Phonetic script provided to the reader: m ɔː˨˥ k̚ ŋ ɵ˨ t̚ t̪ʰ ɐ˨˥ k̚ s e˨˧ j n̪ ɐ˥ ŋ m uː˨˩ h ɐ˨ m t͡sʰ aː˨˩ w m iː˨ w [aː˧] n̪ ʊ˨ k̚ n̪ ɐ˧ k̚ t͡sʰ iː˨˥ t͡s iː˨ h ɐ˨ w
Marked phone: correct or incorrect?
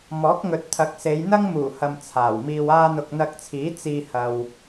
correct